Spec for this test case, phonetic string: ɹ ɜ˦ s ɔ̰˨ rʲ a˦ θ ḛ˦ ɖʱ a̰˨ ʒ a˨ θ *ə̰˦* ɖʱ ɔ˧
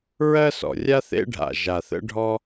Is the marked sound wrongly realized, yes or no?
no